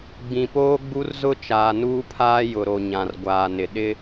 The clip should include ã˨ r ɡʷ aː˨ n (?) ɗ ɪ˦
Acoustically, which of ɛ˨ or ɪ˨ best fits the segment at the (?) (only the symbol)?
ɪ˨